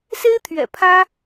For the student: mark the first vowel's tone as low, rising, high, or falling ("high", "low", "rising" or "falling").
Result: high